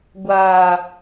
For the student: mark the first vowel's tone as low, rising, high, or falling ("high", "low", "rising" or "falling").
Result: low